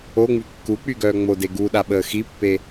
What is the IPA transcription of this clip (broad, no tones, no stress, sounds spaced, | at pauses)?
o ŋ͡m y kː u k͡p y ɡ œː ŋ͡m o d e ɡ u ɗ a ɓ əː x i pː e